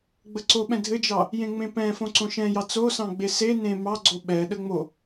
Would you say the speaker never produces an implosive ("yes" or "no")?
no